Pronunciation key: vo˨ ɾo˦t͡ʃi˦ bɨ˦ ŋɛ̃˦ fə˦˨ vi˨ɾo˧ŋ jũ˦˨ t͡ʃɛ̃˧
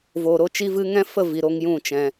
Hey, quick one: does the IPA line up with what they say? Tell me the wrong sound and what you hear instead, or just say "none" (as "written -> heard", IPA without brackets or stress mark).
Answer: b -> v